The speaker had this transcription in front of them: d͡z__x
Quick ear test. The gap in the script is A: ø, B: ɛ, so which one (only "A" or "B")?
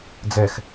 B